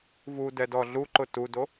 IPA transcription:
v u d ɛ d ɔ ɮ u ǃ ʊ t u d o

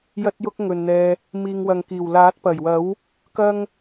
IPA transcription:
j ɐ˥ t̚ j ʊ˥ k̚ ŋ ɵ˨ n n̪ ɛː˧ | m iː˨ ŋ w ɐ˨ ŋ k iː˨˩ w l aː˨˥ t̚ p ɐ˨˩ j w ɐ˨˥ w | k ɐ˥ ŋ

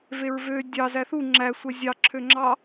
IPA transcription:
v e ɹ v ø dʲ ɑ z æ θ u ŋ͡ǁ æ sʷ ɛ zʲ ɑ ǁʰ ø ŋ͡ǁ ɑ

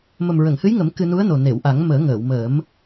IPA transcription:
m ə˨˩ m ɹ ə˨˩˨ ŋ h ɨ˧˥ j ŋ ə˨˩˦ m k ɨ˧ n u˧˥ ə̯ n o˨˩ n e˨˩˨ w ʔ a˨˩˦ ŋ m əː˨˩˦ ŋ əː˨˩˨ w m əː˨˩˦ m

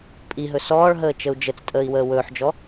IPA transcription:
pʼ i ɦ ɵ s ɔː ɭ ɦ əː t͡ʃ ə u̯ d͡ʒ ə t͡s tʼ əː i̯ w əː w ɵː ħ d͡ʒ ɔ

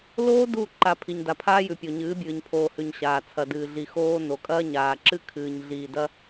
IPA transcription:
l oː˦ d u˦˨ ǃ a˨ pʰ i˨ ɲ d a˨ pʰ aː˦ j ʉ˨ pʲ o˨ ɲ ɨː˨˦ bʲ ɨː˨ ɲ pʰ oː˨ h ʉ˨ ɲ ɕ aː˨ t͡sʰ ɐ˨ d ɨː˨ ɮ i˨ x oː˦ n o˨ kʼ ɐː˦ ɲ aː˨ ǁ ɨ˦ kʰ ɨː˨ ɲ ɮ iː˨ d ɐ˦

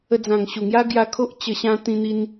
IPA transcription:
ə˧ d͡z ã˨˩ ŋ ɕ u˨˩ ŋ j a˦ ɡ j a˧ kʰ o˦ ʔ t͡ɕ ə˧ ɕ ã˦ t̪ ĩ˦ n̪ i˦ n

